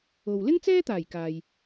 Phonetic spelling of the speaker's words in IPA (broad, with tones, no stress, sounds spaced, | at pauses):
o˨ w l ɪ˥ ŋ t͡s ɛː˥ t̪ aː˨˩ j k aː˨ j